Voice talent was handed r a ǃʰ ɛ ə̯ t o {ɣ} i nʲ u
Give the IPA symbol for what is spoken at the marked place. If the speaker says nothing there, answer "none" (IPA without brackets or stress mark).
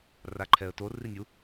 r